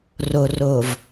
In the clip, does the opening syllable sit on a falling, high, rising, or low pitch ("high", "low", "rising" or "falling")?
low